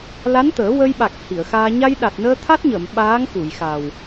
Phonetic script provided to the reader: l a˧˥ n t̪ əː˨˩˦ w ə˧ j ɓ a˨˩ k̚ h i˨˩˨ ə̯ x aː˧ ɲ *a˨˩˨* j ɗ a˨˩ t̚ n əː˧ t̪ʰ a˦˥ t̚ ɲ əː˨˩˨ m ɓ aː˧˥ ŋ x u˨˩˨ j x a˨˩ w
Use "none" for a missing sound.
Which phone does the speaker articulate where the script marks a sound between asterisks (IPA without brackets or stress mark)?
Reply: a˧